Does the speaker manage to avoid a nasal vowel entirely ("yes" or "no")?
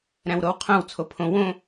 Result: no